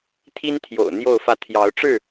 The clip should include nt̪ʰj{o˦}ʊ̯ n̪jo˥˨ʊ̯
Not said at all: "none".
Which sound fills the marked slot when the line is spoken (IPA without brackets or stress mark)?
o̰˨˩